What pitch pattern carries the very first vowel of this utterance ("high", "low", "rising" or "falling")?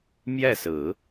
falling